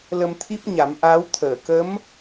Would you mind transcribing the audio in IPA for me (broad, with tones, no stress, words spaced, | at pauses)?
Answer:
lə˧mt̪ʰi˦˥p̚ ɲa˨˩˦mʔaː˧˥w t̪ʰəː˨˩˨kə˧˥m